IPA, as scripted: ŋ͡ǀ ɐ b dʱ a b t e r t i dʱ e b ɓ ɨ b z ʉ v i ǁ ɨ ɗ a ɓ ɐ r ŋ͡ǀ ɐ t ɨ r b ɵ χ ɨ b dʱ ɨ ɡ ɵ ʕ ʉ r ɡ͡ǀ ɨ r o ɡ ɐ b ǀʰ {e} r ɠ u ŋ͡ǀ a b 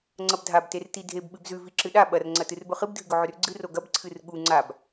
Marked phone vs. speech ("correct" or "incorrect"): incorrect